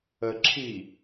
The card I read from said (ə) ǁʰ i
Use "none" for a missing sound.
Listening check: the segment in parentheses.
ə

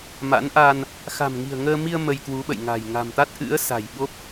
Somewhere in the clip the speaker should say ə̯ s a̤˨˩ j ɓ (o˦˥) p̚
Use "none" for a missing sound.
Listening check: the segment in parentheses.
o˦˥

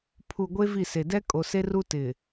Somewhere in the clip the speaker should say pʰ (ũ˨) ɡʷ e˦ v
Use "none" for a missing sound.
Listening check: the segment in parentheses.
u˨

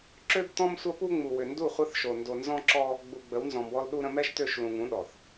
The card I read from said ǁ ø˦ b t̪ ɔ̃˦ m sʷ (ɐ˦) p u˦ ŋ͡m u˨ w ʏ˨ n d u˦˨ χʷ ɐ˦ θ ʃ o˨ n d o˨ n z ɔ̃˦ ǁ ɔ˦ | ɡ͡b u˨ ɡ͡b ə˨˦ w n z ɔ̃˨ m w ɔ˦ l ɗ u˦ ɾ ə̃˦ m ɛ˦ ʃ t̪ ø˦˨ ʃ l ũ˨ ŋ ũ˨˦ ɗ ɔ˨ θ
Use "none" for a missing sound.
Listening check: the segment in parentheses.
ɐ˦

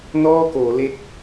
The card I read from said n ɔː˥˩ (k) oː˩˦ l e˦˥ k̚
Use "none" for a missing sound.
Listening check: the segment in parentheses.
k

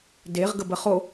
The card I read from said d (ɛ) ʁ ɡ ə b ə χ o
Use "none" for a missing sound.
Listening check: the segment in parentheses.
e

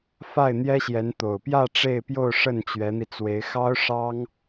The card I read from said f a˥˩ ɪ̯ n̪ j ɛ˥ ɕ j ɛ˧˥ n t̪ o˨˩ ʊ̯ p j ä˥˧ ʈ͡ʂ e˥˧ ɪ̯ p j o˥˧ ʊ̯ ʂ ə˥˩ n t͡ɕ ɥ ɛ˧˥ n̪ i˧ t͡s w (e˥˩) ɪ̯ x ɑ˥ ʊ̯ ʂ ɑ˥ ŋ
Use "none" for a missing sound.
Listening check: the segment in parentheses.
e˧˥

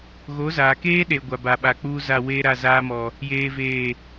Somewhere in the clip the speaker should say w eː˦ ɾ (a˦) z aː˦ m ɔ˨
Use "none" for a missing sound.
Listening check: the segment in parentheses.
a˦˨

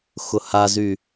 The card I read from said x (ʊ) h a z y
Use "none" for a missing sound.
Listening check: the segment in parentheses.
ʊ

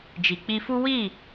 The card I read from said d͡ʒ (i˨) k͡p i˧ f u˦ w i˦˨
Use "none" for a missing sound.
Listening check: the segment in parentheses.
i˨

